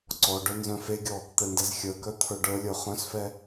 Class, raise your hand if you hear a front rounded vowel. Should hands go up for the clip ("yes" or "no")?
yes